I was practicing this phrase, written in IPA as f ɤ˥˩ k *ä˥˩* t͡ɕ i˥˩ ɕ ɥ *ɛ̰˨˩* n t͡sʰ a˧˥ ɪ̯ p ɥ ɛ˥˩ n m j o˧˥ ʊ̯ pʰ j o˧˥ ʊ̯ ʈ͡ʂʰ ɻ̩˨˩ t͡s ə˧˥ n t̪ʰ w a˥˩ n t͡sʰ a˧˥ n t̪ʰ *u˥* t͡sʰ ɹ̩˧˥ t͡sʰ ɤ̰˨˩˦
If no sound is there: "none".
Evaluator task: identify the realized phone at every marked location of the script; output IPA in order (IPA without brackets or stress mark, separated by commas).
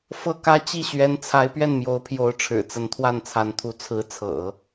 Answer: ä˥, ɛ˧˥, u˧˥